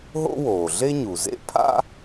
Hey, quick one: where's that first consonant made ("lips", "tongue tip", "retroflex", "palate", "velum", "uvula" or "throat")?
throat